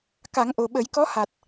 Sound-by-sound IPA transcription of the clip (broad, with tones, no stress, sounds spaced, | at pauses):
k a˨˩˦ ŋ ʔ o˨˩ ɓ ə˨˩˦ j k ɔ˧˥ h a˨˩ t̚